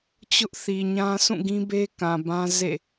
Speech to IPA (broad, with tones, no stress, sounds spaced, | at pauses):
t͡ɕ ʊ˦ ʔ θ i˨ ɲ ã˦ sʰ ũ˦˨ ɡ ĩ˦ b e˦ k ã˨ b ã˦ z ḛ˦˨